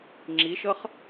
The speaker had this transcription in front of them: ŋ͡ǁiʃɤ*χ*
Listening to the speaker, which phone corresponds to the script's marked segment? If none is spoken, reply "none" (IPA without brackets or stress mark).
χ